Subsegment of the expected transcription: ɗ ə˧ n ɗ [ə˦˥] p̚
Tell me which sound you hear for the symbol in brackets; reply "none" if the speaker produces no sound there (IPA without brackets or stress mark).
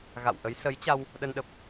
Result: ə˨˩